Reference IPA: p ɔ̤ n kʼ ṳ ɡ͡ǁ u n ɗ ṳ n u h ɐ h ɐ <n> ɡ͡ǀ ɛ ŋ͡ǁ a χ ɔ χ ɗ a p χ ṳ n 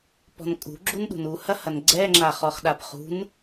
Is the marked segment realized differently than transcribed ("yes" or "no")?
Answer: no